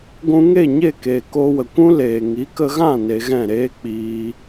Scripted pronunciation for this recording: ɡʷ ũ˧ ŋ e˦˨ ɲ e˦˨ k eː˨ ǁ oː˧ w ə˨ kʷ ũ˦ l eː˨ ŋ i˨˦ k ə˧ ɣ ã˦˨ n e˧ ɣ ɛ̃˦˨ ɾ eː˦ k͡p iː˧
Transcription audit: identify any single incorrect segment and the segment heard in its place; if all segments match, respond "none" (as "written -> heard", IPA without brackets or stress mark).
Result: ǁ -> k